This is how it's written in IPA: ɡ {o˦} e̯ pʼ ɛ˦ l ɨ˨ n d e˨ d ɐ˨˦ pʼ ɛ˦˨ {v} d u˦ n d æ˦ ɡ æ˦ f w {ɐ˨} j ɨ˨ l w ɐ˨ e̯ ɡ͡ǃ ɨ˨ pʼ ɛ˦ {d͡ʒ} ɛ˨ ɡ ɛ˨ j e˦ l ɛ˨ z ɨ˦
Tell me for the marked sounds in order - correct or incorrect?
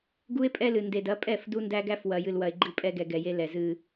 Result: incorrect: u˦, incorrect: f, correct, incorrect: ɡ

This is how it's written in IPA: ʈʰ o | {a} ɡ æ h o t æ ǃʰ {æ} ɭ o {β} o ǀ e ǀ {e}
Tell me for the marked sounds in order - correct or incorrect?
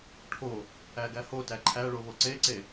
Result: incorrect: æ, correct, correct, correct

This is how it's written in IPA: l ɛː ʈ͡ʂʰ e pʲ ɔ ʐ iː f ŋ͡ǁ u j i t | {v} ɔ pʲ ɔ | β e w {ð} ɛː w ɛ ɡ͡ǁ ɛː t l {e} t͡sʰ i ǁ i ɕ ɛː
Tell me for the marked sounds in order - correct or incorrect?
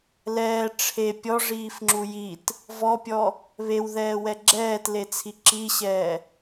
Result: correct, correct, correct

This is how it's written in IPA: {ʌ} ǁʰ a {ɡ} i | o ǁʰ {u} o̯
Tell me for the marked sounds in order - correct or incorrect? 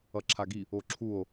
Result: correct, correct, correct

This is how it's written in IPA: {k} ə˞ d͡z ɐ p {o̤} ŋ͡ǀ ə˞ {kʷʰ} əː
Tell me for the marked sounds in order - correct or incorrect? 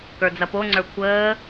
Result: correct, incorrect: o, correct

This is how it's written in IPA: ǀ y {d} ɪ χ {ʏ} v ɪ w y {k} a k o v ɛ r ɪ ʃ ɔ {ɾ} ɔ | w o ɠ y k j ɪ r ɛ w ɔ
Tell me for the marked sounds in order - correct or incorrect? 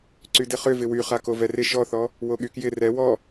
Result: correct, correct, incorrect: χ, incorrect: θ

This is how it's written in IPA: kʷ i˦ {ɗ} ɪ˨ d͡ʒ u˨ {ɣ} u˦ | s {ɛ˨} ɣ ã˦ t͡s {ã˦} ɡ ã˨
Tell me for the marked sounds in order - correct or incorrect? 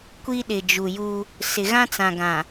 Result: correct, incorrect: j, incorrect: ɪ˨, incorrect: ã˨

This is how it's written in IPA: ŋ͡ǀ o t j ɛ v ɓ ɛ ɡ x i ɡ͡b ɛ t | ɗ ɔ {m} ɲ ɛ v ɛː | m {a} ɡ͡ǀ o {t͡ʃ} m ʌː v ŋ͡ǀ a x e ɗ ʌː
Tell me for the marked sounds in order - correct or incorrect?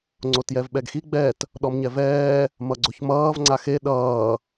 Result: correct, incorrect: ʌ, incorrect: ç

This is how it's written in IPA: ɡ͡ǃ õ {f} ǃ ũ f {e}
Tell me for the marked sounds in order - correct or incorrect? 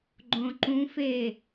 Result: incorrect: none, correct

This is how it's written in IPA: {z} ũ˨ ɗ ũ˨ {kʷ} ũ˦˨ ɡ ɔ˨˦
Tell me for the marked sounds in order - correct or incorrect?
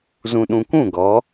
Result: correct, correct

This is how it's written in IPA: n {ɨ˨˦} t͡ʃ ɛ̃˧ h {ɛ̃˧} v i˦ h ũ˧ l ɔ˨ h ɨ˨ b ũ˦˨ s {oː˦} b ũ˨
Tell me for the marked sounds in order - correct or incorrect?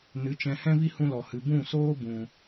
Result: correct, incorrect: ɛ̃˦, correct

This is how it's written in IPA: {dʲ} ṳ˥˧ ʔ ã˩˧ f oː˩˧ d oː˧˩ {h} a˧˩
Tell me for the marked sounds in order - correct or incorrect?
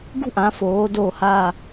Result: incorrect: ɡ, correct

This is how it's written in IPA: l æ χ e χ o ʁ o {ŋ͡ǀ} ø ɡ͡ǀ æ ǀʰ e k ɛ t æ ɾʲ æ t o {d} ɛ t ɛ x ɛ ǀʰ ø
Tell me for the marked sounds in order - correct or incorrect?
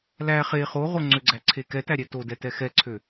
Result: correct, correct

